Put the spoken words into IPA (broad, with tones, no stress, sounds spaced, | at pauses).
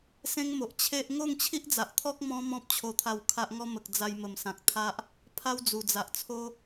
s ẽ˦ ŋ m o˨ ʔ t͡ɕʰ e˦ ʔ ŋ o˥˧ ŋ t͡ɕʰ i˦ ʔ d͡z a˨ ʔ t̪ʰ ɔ˦ k̚ m ɔ̃˧ m ɔ̃˦ p̚ t͡ɕʰ o˧ t̪ʰ a˧ w kʰ a˦ ʔ ŋ ɔ˦ m ə˨ k̚ d͡z a˧ j m ə˨˩ m s ã˨ k̚ t̪ʰ a˦ ʔ | pʰ a˦ w d͡z u˨˩ d͡z a˨ ʔ t͡sʰ o˦